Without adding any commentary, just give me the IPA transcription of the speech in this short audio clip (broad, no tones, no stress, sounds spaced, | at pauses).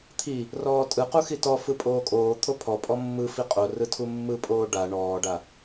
t̪ʰ i | r ɔː tʼ ɯ q u x i t ɔ f ɯ pʼ oː kʼ oː t̪ʰ o pʰ ɔ pʼ ɔ mː ɯ f i qʼ o r ɯ tʰ u mː ɯ pʼ oː ɖ a ɳ ɔː ɖ a